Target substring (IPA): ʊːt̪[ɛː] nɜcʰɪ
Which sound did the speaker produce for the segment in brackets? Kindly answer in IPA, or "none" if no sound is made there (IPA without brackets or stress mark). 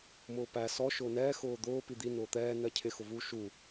ɛː